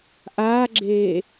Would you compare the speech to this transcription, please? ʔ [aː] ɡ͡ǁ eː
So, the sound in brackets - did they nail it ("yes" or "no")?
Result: yes